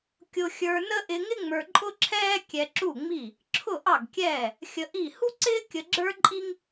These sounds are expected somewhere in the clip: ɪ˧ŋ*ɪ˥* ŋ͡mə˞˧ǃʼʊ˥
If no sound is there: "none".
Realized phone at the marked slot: ɪ˥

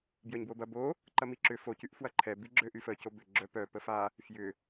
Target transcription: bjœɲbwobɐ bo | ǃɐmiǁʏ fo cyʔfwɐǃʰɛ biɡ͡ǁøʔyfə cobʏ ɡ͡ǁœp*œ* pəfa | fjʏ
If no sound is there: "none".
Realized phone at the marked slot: œ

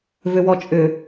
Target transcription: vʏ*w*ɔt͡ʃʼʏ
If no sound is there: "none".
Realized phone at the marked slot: w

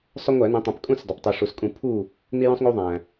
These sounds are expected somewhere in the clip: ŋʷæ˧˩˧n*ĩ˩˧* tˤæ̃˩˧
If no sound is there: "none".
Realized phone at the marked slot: ĩ˩˧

